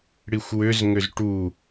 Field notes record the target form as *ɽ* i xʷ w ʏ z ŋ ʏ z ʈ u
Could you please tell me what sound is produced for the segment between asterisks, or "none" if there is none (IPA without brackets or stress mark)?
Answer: ɽ